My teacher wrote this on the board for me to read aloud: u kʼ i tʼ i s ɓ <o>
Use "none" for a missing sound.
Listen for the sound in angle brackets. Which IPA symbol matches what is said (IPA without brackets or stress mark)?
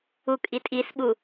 u